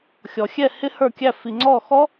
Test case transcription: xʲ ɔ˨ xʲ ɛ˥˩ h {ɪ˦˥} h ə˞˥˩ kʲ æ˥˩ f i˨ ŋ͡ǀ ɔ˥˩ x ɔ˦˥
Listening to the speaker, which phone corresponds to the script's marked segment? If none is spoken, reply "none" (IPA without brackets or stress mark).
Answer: ɪ˦˥